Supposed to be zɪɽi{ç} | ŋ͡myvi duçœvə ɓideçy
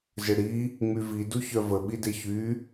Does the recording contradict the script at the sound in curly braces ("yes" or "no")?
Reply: yes